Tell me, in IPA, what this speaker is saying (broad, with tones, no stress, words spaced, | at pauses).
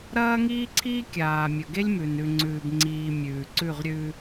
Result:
ɾɐː˦ŋiː˦ǀʰiː˦kʲaː˨ mʲɵ˨ɡe˦lʲmʉ˨n ʉ˨ŋ͡ǀʉː˨bŋ͡ǀiː˨ mʲʉː˨ ǀʉ˦˨ʁɾʲʉː˦